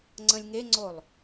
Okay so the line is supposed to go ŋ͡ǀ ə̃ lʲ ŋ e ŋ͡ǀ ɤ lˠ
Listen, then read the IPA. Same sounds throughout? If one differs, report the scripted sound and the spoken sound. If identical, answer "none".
ɤ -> o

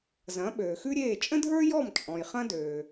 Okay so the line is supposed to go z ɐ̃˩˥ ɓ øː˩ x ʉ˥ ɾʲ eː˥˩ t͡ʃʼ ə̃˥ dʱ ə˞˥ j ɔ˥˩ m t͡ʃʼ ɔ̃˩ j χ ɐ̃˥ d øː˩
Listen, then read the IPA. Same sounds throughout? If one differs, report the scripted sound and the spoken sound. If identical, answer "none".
none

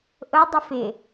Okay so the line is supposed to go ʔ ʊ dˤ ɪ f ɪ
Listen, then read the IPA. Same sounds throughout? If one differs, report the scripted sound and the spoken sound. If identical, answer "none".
none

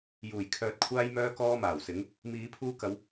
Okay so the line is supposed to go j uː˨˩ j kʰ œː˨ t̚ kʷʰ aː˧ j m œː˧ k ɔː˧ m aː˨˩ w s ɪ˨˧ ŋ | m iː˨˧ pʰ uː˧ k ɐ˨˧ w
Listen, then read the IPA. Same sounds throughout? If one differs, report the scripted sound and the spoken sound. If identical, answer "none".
none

